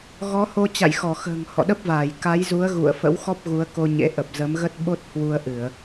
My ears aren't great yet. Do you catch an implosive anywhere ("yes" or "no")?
yes